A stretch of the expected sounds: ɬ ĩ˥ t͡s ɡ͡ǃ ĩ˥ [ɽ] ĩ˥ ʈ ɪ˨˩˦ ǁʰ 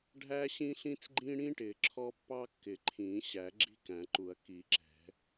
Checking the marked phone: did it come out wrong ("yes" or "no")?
no